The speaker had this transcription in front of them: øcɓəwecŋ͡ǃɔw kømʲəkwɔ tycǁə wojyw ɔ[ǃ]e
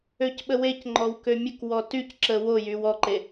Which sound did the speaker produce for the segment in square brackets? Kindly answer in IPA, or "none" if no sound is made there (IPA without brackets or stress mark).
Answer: ǃ